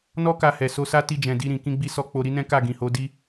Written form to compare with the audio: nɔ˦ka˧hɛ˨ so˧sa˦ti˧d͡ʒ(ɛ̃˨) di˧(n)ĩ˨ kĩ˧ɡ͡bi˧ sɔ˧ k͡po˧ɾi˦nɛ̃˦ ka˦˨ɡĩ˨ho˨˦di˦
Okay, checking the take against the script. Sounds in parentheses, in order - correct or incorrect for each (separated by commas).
correct, incorrect